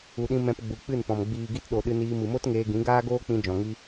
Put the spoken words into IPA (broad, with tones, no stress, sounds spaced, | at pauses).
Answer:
u˨ ɗ ĩ˧ m ɛ̃˧ p ɡ͡b u˨ k͡p ɨ˦˨ n p ɔ̃˨ m ɡ͡b iː˨ ɡ i˧ t ɗ o˨ ɗ ɨ˧ n iː˧ m ɨ˨ m o˦ t ŋ eː˧ ɡ ĩ˨˦ ɡ aː˦ ɡ oː˦ k͡p ĩ˧ d͡ʒ ɔ̃˨ ŋ i˧